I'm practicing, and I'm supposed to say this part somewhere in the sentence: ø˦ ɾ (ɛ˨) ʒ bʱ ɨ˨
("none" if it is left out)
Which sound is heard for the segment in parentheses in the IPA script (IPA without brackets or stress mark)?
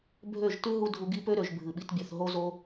ø˨